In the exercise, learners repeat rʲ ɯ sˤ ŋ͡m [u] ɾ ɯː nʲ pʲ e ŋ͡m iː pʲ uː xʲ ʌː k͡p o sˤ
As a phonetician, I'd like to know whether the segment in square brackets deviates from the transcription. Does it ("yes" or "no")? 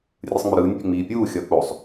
yes